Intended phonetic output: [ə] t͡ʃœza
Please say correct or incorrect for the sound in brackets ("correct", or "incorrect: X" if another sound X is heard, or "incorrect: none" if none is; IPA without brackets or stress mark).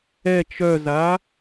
incorrect: ɛ